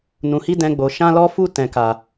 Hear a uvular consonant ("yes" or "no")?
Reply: no